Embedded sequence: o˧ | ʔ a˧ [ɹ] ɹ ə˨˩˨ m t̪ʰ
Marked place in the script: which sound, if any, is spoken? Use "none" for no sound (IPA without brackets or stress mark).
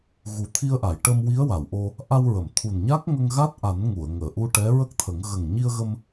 w